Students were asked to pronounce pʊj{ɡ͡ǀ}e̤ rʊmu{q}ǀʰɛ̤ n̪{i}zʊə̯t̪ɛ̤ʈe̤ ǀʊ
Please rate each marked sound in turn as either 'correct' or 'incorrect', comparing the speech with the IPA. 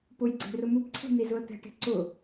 correct, incorrect, correct

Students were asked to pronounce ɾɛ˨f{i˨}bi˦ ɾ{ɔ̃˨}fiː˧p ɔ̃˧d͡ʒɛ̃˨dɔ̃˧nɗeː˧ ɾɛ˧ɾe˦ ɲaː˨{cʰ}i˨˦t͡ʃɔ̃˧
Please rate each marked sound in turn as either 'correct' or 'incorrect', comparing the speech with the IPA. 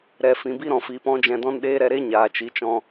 incorrect, correct, incorrect

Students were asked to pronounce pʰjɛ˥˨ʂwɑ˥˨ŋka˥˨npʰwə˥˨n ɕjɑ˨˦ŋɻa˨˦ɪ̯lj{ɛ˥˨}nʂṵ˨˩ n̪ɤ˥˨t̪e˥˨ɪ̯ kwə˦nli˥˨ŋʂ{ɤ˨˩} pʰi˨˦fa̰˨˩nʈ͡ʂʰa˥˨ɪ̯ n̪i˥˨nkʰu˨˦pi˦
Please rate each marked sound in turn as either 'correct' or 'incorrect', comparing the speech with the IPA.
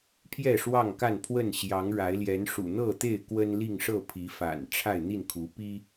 incorrect, incorrect

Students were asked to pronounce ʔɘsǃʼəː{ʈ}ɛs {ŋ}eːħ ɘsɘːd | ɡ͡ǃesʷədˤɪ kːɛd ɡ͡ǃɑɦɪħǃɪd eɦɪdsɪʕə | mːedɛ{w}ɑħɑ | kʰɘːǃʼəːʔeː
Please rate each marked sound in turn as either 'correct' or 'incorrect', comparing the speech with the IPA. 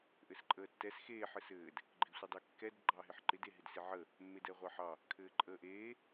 incorrect, incorrect, incorrect

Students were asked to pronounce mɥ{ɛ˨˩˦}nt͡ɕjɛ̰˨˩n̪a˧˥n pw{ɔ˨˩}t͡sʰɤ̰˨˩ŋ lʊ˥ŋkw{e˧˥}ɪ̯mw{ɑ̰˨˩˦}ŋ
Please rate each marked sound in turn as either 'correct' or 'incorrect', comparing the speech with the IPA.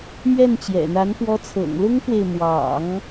incorrect, incorrect, incorrect, correct

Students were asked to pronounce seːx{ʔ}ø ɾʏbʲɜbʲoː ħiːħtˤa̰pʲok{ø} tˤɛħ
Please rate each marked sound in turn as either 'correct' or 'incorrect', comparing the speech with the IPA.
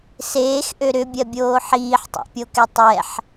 correct, incorrect

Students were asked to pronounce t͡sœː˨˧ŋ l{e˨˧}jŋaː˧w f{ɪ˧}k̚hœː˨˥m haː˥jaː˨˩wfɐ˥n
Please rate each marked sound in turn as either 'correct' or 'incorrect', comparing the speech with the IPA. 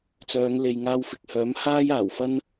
incorrect, incorrect

